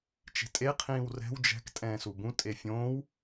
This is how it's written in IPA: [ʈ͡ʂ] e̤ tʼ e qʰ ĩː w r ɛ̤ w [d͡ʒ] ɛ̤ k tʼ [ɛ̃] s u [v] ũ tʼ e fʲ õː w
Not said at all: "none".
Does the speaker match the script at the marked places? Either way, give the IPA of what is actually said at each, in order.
t͡ʃ, d͡ʒ, ɛ̃ː, b

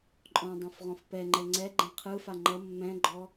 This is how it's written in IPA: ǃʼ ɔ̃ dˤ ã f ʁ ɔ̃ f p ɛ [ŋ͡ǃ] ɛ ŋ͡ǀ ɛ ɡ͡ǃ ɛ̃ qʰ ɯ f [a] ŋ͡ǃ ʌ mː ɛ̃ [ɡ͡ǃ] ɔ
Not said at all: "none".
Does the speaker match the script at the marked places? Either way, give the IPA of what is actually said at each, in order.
ŋ͡ǃ, a, ɡ͡ǃ

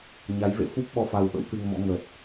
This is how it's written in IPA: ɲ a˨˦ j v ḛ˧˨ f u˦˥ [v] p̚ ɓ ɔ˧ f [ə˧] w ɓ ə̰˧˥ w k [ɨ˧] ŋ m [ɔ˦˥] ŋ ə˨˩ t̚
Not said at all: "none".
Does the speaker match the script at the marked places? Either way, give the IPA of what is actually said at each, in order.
none, a˧, ɨ˧, ɔ̰˧˥

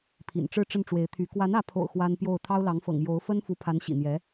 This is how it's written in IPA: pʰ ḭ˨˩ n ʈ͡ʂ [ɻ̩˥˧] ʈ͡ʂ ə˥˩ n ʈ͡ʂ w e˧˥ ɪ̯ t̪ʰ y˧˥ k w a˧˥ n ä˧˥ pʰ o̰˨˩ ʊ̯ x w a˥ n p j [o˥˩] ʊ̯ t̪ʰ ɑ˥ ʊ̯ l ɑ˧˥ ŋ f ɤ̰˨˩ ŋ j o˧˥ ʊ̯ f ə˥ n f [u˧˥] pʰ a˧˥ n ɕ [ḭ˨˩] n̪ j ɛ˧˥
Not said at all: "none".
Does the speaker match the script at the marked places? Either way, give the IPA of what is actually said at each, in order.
ɻ̩˥˧, o˥˩, u˧˥, ḭ˨˩

